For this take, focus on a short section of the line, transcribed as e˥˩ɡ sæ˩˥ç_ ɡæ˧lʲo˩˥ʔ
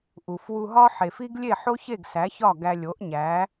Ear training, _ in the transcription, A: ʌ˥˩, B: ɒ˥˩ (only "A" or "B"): B